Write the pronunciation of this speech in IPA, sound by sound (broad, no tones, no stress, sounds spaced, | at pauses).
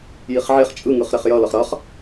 j i χ ʕ e χ t͡ʃʼ ɯ ŋ ɯ χ ɾ e χ j ʌ l ʌ χ ɾ ʌ χ